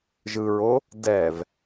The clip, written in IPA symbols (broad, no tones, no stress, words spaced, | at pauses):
ʒɯɹo | dɛv